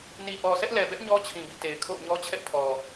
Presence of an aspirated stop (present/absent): present